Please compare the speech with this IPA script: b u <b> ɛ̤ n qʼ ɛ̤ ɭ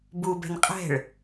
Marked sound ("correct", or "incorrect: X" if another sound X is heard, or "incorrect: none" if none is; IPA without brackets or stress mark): correct